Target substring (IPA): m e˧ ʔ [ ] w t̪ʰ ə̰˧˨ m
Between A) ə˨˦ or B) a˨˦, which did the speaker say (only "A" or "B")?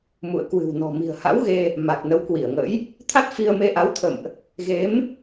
B